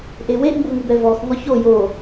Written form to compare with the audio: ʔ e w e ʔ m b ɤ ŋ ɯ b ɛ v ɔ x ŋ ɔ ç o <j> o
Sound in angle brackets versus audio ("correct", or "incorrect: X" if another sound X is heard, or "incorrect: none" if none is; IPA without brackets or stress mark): correct